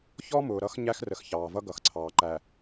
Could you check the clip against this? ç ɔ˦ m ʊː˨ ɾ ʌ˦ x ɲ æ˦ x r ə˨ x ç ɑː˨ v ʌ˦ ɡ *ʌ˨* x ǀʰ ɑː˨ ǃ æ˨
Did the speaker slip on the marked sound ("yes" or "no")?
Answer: no